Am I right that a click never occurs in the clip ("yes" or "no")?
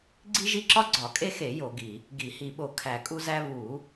no